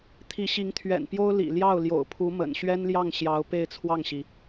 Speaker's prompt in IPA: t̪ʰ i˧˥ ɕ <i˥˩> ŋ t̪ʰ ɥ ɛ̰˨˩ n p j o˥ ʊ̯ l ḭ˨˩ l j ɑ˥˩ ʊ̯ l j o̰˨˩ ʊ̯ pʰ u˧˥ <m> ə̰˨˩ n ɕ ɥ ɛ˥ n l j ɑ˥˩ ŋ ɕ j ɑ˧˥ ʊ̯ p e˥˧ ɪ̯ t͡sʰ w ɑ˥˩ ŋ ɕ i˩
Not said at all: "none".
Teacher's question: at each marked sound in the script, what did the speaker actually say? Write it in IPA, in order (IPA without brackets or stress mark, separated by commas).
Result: i˧˥, m